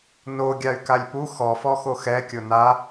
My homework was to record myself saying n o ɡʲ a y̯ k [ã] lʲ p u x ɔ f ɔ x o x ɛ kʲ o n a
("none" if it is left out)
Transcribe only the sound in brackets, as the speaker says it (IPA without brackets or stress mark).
a